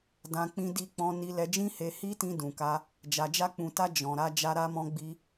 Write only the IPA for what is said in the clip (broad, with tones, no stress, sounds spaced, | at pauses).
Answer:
d ã˧ k͡p ĩ˧ d i˧ k͡p ɔ̃˧ n i˧ l ɛ˧ d͡ʒ ĩ˦ h e˧ h i˦ t ĩ˧ d ũ˨ k a˧ | d͡ʒ a˧ d͡ʒ a˦ k͡p ũ˧ t a˦ d͡ʒ ɔ̃˧ ɾ a˦ d͡ʒ a˦ ɾ a˦ m ɔ̃˦ ɡ͡b i˦